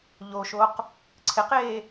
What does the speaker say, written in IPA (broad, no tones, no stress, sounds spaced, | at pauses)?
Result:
ʎ o ʃ o q | ǀʰ ɪ q eː